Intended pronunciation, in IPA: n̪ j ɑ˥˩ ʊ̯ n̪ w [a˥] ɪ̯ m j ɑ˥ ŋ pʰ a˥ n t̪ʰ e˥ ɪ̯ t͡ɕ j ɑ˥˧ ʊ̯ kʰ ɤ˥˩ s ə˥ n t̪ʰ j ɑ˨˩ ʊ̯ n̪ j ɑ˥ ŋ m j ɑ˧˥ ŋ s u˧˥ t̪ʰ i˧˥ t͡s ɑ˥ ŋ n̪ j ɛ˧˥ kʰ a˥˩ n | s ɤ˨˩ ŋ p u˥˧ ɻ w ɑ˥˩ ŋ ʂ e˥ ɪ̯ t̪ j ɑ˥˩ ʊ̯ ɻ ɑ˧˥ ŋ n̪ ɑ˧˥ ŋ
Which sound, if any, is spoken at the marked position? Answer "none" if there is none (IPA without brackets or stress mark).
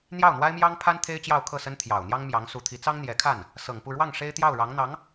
a˥